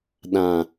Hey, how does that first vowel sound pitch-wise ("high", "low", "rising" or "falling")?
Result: low